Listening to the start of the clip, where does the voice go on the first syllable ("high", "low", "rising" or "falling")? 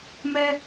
high